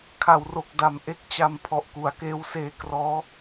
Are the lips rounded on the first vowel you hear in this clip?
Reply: no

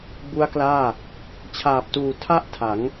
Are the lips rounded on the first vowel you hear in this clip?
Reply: yes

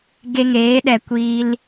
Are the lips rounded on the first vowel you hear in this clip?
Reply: no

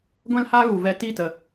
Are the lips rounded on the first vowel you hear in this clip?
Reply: no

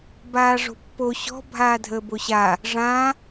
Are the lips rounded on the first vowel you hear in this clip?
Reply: no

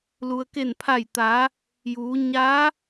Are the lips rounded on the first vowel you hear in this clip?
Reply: yes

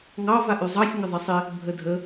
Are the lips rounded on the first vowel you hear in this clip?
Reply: no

